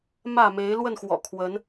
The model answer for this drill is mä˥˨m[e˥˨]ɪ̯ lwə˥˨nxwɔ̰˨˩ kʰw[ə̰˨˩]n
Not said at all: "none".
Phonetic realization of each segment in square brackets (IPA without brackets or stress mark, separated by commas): e˨˦, ə˨˦